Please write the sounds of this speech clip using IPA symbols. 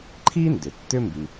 ǃʰ i˥ n d ʏ˩ tː ʏ˥ m b i˩

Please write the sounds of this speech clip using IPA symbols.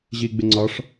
ʑ i ɡ͡b ɪ ŋ͡ǀ ɒ ʂ

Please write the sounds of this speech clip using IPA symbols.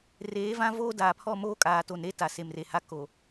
r eː˨˦ v ã˦ v oː˦ d aː˨ pʰ ɔ˦˨ m oː˦ kʼ aː˨ t o˨ n ɾ e˦ t a˨ s e˨ m r e˨ h a˦ k o˨

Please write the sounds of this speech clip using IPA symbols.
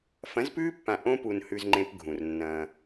f ɐ̃˨˦ z p ʉː˦ pː ã˨ ʔ õ˦ p u˨ n h ʉ˦ z ŋ͡ǃ ẽ˦ p ɡʱ ũ˨ r nː ɐ̃ː˦

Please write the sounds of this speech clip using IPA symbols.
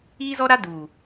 iː˦ z ɔ˦ ɾ a˦ d u˨

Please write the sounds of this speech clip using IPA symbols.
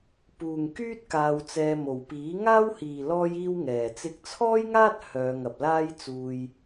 p uː˨ ŋ k yː˥ t̚ k aː˧ w t͡s ɛː˧ m o˨ w p iː˨˥ ŋ aː˥ w h iː˨ l ɔː˥ j iː˥ w ŋ ɛː˨ t͡s ɪ˧ k̚ t͡sʰ ɔː˥ j ŋ aː˥ t̚ h œː˨˧ ŋ ɐ˨ p̚ l aː˥ j t͡s uː˧ j

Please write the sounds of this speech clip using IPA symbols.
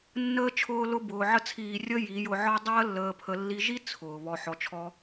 nː əː˦ t͡ʃʰ ʊː˦ l ʊ˦ b ʊː˧ ʕ ə˧ t͡sʰ iː˨ rʲ ə˧ j i˨˦ j ʊ˧ ʕ ɒ˦ dˤ əː˦ lː əː˧ pʰ ə˧ lː i˧ ʒ i˦ t͡sʰ ʊː˨ β ɔ˧ ħ ɔ˧ t͡ʃʰ ɔ˦

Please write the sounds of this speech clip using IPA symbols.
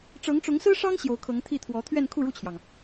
ʈ͡ʂ ɤ˧˥ ŋ ʈ͡ʂ ʊ˧˥ ŋ s ɹ̩˥ ʂ ɑ˥ ŋ ɕ j o˧˥ ʊ̯ kʰ ɤ˧˥ ŋ t̪ʰ i˥˩ t̪ʰ w ɔ˧˥ t̪ʰ ɥ ɛ˥˧ n kʰ u˥˧ ɻ u˥˩ t͡ɕʰ j ɑ˩ ŋ

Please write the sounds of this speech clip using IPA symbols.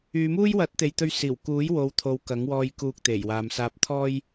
yː˨˧ m uː˥ j w ɐ˨˥ t̚ t̪ e˨ j t̪ ɵ˧ ɥ s iː˨˩ w k uː˨˥ j w o˨˧ w t̪ʰ o˨ w k ɐ˨˥ ŋ w ɔː˧ j k uː˧ k̚ t̪ e˨˩ j w aː˨ m s aː˨ p̚ t̪ʰ ɔː˧ j

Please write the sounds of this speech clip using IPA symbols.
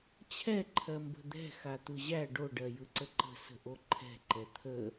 t͡ɕʰ ɛ ǃʰ ɜ m b ə̤ d̪ ɛ̤ x a t̪ ɯ ʑ æ ɖ o ɖ ɜ j ɯ ǀ ə ǃ ə̤ s ə̤ ʔ o ǃʰ ɛ̤ ǃ ɛ t̪ʰ ə

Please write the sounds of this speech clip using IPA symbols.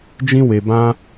d͡ʒ ĩ˦ w e˧ b ã˦

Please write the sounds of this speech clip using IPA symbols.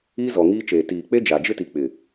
iː˦ z ɔ˨ ŋ iː˦ t͡ʃ eː˨ t iː˨ k͡p e˦ d͡ʒ a˨ d͡ʒ ɪ˦ t i˨ k͡p ɪ˨

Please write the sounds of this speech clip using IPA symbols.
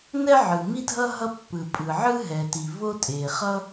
n ɛ˥ ʕ ɯ˩ m i˥ dʱ ʌ˥ ɦ ʌ˥ pː ɯ˩ pʼ ɯ˩ ʕ ɯ˥ ɦ ɛ˩ t i˩ v o˥ tʼ e˩ χ ʌ˥

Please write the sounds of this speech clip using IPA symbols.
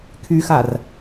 kʰ y x a r

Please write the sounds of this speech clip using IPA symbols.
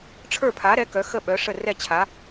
ʈ͡ʂʰ ə˞˥˩ pʰ a˩˥ ɾ ɛ˩˥ k œ˩˥ x ə˥˩ ɓ œ˩˥ ʂ ə˥˩ r ɛ˥˩ t͡ɕʰ a˩˥

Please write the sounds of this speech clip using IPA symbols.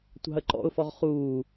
tʷ ɑ̤ ə̯ ǃ ɔ̰ ʊ̯ f ɔ ʁ χ uː

